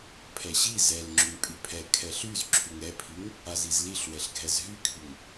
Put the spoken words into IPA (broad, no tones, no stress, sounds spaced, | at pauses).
pʰ ɛ ɕ i z ɛ l ŋ͡ǁ y ŋ pʼ y pʰ ɛ kʰ ɛ ɬ y z ǁʰ y ŋ ɛ pʰ i ŋ | a z i z l i ɬ w ɛ ɬ ɡʱ ɛ z ɦ y kʰ y ŋ